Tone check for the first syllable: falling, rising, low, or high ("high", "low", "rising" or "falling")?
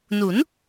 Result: rising